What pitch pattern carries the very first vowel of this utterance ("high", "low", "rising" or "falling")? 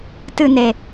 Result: falling